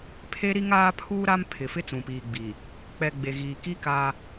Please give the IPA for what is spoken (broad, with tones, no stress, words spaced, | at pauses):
pʰe˦ ɾi˦ŋaː˦pʰuː˦ ɾa˦m pʰɪ˨ fɪ˦ t͡sũ˨piː˨ɡ͡biː˨ | k͡pɛ˨ ɡ͡be˨ɣiː˨ki˦ kaː˦